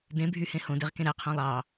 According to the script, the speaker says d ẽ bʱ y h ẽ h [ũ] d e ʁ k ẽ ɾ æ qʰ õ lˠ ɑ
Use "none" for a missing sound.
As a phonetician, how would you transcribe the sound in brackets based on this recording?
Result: õ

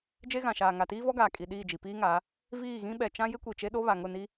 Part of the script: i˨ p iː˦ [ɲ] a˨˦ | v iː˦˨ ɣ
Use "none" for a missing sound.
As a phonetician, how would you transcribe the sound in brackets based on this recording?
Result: ŋ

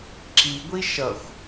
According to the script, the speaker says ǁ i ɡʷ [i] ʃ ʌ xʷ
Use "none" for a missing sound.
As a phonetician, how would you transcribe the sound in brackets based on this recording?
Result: i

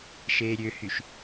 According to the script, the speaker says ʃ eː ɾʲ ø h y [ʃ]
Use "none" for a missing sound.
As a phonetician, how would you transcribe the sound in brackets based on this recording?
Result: ʃ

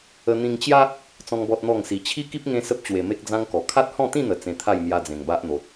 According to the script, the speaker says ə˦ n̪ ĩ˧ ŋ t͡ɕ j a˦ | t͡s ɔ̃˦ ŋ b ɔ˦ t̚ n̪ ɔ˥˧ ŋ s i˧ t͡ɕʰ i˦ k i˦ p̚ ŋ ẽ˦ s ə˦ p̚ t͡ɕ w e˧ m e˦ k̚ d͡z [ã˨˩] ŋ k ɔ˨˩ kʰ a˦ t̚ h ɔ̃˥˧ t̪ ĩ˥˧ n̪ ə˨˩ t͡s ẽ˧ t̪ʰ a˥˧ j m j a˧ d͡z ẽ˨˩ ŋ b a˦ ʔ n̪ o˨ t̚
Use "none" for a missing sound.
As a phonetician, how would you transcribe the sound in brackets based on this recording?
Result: ã˦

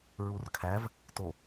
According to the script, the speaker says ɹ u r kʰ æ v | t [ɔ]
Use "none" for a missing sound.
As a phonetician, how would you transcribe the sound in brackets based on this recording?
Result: o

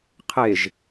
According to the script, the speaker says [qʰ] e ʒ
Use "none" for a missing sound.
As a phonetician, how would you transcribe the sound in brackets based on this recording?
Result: qʰ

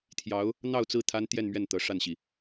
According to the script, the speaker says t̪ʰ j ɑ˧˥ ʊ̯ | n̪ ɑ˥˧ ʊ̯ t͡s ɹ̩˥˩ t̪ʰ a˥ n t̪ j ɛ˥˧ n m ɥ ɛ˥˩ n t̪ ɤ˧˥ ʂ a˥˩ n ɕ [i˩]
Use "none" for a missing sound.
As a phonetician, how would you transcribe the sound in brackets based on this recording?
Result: i˩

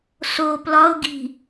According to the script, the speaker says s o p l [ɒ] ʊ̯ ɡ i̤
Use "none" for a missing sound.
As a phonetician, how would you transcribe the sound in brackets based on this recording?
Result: ɒ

